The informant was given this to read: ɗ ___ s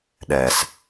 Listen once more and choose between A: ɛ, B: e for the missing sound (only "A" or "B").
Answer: A